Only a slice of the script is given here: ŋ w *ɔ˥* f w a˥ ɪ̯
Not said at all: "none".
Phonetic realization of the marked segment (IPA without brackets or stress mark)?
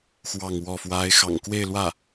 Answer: ɔ˥˩